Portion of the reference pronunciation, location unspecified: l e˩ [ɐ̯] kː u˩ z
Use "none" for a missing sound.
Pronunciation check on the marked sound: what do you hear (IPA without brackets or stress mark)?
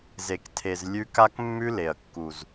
ɐ̯